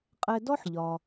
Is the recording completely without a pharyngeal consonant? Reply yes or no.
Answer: no